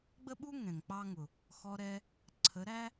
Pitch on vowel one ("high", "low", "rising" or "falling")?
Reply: high